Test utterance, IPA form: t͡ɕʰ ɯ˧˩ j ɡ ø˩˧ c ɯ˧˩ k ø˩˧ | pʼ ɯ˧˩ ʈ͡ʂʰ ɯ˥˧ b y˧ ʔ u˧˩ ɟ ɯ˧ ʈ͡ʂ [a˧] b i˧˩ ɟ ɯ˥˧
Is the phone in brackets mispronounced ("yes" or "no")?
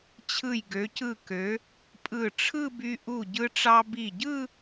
yes